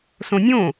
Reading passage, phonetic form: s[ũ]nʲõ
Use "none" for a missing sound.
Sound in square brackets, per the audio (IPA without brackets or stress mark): õ